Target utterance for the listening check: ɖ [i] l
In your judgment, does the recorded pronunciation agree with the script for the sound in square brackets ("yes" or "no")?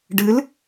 no